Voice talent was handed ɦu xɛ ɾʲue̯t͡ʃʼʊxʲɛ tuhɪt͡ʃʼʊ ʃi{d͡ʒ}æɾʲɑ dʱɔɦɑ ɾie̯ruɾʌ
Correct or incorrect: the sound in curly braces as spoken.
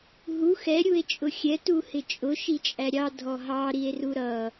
incorrect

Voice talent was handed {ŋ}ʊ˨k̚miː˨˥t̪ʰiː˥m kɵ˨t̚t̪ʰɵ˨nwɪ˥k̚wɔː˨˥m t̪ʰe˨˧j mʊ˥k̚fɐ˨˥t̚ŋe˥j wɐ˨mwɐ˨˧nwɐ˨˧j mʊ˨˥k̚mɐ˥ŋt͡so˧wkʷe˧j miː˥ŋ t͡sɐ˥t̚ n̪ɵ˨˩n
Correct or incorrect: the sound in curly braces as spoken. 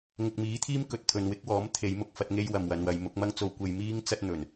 correct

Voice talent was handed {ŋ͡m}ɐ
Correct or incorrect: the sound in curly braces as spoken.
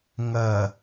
incorrect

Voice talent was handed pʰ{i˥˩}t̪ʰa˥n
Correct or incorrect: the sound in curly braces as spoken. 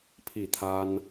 correct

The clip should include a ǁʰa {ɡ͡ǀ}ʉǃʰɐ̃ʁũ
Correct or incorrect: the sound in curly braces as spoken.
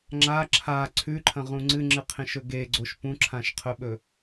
incorrect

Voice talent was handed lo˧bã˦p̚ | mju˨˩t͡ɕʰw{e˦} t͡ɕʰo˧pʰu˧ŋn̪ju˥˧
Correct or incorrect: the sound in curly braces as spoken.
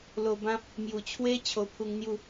correct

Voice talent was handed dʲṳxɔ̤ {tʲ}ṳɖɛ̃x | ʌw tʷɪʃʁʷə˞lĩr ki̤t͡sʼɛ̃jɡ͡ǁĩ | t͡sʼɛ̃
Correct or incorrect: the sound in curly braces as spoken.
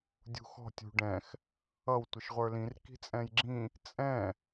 correct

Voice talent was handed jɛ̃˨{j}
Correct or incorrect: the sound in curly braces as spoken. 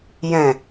incorrect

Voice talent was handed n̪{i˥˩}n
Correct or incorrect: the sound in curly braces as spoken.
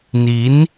incorrect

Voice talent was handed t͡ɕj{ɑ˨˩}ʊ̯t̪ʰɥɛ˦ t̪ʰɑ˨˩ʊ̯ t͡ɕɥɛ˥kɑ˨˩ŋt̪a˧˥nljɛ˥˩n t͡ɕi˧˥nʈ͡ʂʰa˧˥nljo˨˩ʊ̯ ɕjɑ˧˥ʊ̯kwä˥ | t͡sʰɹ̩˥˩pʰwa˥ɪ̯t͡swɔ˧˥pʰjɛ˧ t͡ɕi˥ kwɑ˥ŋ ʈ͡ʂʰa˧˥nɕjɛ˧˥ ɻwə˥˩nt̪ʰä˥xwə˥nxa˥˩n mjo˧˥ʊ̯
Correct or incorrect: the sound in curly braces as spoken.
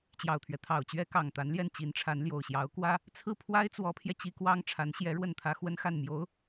correct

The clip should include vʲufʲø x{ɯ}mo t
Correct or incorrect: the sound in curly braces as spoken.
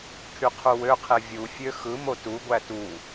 correct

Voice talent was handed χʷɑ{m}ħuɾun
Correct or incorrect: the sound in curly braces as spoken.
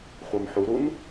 correct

